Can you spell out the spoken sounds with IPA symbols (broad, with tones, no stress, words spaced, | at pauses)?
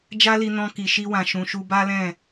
d͡ʒa˦li˧nɔ̃˧ki˨ ʃi˧wã˨ʃũ˨ ʃu˧ba˦lɛ̃˦˨